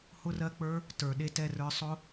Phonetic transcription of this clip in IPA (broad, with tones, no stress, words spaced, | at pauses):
hʊ˦rɜ˦k͡pə˞˦ | tə˞˨ɗe˧ tɛ˦˨rə˞˧sˤʊ˦